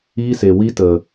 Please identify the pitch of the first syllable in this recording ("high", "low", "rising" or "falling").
high